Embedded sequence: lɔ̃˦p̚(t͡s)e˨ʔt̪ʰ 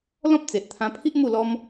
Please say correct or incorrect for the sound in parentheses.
correct